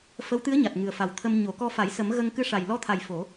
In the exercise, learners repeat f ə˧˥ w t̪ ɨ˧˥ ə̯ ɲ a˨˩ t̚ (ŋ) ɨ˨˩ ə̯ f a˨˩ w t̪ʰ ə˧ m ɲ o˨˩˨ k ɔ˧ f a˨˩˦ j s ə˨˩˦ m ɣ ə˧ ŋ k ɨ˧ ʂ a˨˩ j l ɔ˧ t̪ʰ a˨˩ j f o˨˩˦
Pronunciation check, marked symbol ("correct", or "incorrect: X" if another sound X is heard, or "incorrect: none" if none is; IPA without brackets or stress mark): correct